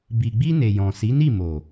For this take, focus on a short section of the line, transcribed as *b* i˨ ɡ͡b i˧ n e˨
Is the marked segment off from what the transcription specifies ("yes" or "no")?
no